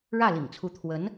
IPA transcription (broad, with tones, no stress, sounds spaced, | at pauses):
ɻ ä˥˩ l ḭ˨˩ ŋ t͡sʰ u˧˥ t̪ʰ w ə˧˥ n